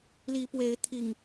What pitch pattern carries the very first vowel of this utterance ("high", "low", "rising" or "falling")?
rising